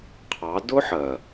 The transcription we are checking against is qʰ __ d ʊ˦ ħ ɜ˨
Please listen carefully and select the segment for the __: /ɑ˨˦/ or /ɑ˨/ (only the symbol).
ɑ˨˦